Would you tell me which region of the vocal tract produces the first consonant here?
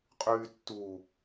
uvula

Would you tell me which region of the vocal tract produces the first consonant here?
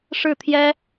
retroflex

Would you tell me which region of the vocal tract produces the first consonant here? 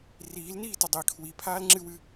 tongue tip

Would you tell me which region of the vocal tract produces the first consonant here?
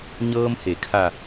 palate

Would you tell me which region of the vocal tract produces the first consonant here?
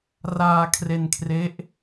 tongue tip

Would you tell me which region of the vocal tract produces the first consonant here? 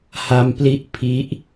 throat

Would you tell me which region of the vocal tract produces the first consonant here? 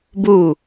lips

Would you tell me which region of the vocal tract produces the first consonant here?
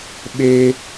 lips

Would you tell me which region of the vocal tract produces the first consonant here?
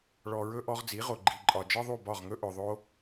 retroflex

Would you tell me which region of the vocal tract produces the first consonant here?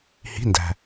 throat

